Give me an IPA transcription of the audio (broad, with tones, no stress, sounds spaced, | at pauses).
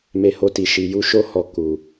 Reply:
m e˧ h o˧ t i˨ ʃ i˨ j u˧ ʃ o˧ h ɔ˨ k u˨